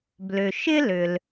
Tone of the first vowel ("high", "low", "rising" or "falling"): low